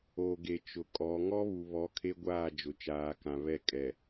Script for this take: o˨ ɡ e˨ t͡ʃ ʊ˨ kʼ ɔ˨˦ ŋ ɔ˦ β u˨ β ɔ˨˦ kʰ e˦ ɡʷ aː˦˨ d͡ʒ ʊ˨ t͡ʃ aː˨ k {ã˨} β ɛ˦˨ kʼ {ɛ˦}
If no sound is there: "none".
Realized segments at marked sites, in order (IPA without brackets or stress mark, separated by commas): ã˨, ɛ˨